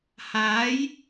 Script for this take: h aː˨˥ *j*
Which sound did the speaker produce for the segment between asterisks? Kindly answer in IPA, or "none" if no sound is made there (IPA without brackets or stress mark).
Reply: j